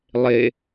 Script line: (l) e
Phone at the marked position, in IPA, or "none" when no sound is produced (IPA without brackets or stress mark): lˠ